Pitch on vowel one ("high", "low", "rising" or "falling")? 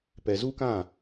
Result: low